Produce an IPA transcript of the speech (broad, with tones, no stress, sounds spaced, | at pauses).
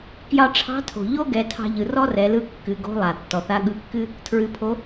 k j ɑ˧ ʈ͡ʂʰ ɑ̤˧˥ tʰ o̤˩ ʎ o˥ ɡ ɛ˩˧ tʰ ɑ̤˧ ʎ ɯ˩ r ɔ˥ r ɛ˩˧ l ɯ˧˥ kː ɨ˩˧ ɡ o̤˧˥ lˠ a˩ tː ɔ˩ θ a˧˥ ɠ ɯ˧˥ kː ɨ˥ | tʰ ɹ ɨ˩ pʰ o˩˧